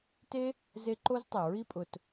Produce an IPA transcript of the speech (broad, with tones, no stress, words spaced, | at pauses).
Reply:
te˦ | ze˦ ǃo˦ztˤɛ˨ ɹi˧pʼʊ˨t